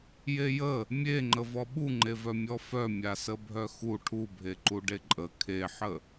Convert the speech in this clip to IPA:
j e j ə | mʲ e ŋ͡ǃ ə v ɔ ɓ u ŋ͡ǃ e v œ mʲ ɔ f œ mʲ a s ə bʱ œ x u ʈʰ u bʱ e ǃ u ɖ e ǃʼ ə kʰ e ħ ə

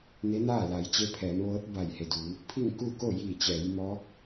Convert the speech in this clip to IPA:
n e˧˥ n aː˥˨ l a˩˧ j t͡ɕ e˧˥ pʰ ɛː˩˧ m ʋ ɤː˧˥ t̚ b a˧˩ j h e˩ d uː˩˧ | pʰ i˥˨ ŋ k uː˥˨ k o˥˨ j iː˧˩ t͡ɕ ɛː˩˧ j m ɔː˧˥ k̚

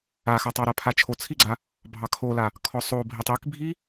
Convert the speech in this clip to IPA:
a x a tˤ ɑ ɾ a pʰ a t͡ʃʰ o t͡sʰ i ɡ͡ǀ a | bʱ ɑ kʰ o l a | kʰ ɔ sˤ o bʱ i tˤ i k bʱ i

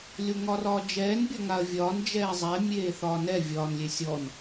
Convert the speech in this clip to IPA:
lʲ o ŋ ɒ r ɒː d͡ʒ ɛː n bʲ ɒ ŋ a ɐ̯ vʲ ɒː n d͡ʒ ɛː zˤ ɛ mʲ eː θ ɒː n ɛ vʲ ɒː n lʲ e sʲ ɔ n

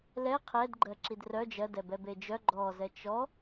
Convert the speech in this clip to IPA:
l ɛ qʰ ɛ d ɡ͡ǃ ɜ ǁ i d r œ d͡ʒ ɜ d ɛ b ɛ b e d͡ʒ œ ɡ͡ǃ ɔ z ɛ t͡ʃ ɔ

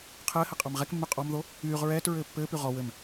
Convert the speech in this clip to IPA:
qʰ ɘː h ɘ qʼ ɑ m ʁ ɛ k mː y qʼ ɔ m ð o | yː ʁ ɹ ɛː t ɹ ɘː pː ɘː p y ʁ ɔ w ɘ m

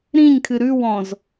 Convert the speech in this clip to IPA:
ɾ ĩ ɲ kʰ ɨ ɾ ʉ w ɔ̃ z

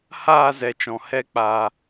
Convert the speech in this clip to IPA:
h aː˦˨ z ɛ˨ t͡ʃ ɔ̃˨ h ɛ˦ k͡p a˧

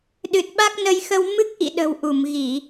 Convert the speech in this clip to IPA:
ɗ ɨ˨˩ t̚ ɓ a˦˥ k̚ n ə˧ j x ə˧ w m ɨ˦˥ k̚ ʔ ḭ˧˨ ɗ ə̤˨˩ w ʔ u˧˩ m ɣ i˧˩˨

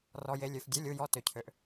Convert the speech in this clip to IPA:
r ɔ˩ j e˩ lʲ ø˩ f dʲ u˩˧˩ lʲ u˩˧˩ j ɔ˩˧˩ t ø˩ cʰ ø˩ ʔ

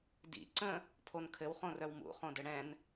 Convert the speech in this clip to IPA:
d ḭ ǀ ə̃ | pʰ o n kʰ ɘ w χ õ r œ w m ṵ χ õ d ɘ ɽ ɛ̃ n

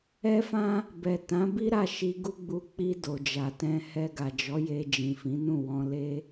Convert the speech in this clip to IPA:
ɛ˦ f ã˦ | b ɛ˨ t ã˨˦ b i˦ ɾ a˦˨ ʃ i˧ ɡ u˦ ɡ͡b u˦ k͡p i˧ d o˨ d͡ʒ a˨ t ɛ̃˧ h ɛ˧ ɡ a˨ d͡ʒ ɔ˨˦ j e˧ d͡ʒ ĩ˨ f ĩ˨˦ n ũ˦˨ w ɔ̃˧ l e˦

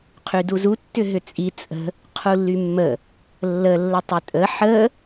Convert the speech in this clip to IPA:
qʰ y d u z u tː ʏ ɦ ʏ t͡sʼ i t͡sʼ ə̤ | qʰ u lː y mː ə | lː ə lː ə tˤ ʏ tʼ ə ħ ə

